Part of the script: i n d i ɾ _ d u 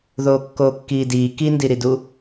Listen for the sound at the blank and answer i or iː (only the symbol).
i